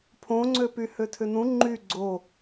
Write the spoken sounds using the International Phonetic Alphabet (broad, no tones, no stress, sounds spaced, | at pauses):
pʰ õ ŋ͡ǀ ø p y h ø tʰ ʏ n ũ ŋ͡ǃ y ɡ͡ǀ o